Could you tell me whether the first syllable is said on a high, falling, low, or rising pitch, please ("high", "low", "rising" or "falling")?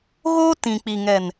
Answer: high